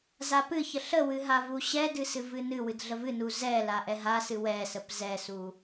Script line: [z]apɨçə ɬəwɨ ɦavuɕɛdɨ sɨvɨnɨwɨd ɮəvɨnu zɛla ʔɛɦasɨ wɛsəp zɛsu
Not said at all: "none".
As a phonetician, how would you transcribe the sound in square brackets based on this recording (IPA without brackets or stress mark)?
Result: z